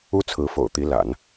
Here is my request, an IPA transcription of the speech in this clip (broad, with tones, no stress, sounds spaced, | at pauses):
u˥ t͡sʰ ɹ̩˧˥ f o̰˨˩ ʊ̯ t̪ i˧˥ l a̰˨˩˦ n